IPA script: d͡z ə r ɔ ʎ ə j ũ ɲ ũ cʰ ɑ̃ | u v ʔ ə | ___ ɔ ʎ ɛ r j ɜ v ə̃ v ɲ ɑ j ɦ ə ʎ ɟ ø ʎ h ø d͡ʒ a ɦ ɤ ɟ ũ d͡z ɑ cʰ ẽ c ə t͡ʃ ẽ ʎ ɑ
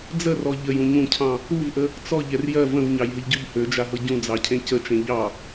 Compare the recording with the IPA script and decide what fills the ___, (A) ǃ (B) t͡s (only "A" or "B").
B